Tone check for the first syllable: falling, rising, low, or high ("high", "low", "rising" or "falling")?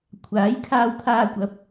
rising